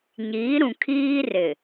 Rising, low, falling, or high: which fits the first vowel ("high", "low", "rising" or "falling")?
rising